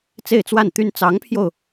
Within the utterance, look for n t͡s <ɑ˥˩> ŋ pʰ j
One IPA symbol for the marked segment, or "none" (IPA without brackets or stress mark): ɑ˧˥